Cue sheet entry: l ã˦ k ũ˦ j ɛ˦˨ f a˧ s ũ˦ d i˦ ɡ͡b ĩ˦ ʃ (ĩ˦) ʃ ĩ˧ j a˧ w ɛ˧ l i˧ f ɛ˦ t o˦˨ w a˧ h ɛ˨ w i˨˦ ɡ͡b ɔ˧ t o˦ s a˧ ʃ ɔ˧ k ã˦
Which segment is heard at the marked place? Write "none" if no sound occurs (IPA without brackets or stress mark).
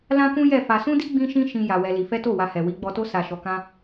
ĩ˦